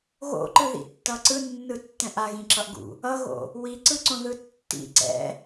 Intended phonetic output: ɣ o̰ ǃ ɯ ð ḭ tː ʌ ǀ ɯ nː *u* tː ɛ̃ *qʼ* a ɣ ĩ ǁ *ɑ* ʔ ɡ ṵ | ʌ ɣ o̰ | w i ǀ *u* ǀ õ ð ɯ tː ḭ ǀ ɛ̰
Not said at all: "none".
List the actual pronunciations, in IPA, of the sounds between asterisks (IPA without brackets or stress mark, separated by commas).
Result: ɯ, ʔ, ʌ, ɯ